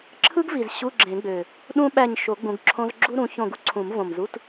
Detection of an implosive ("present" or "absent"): present